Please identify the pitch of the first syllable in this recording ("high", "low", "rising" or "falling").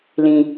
low